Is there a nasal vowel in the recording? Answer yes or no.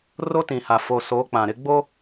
yes